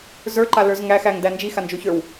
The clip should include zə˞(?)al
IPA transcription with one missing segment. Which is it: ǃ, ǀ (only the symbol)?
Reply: ǃ